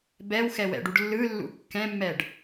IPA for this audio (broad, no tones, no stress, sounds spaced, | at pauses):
b ɛ w x ɛ w ɛ̰ ɖ u ɖ lː ɯ lː ṵ kː ɛ̃ mː ɛ ɖ